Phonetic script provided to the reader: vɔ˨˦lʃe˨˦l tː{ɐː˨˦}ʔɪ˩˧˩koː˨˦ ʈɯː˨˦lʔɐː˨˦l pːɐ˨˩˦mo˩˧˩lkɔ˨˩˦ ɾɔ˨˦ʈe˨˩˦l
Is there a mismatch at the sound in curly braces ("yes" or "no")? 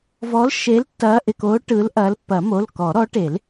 no